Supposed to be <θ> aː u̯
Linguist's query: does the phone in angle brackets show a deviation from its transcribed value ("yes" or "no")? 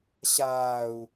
yes